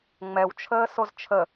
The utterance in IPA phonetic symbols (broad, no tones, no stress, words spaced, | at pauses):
ŋ͡mɛwt͡ʃʰəːsoz t͡ʃʰə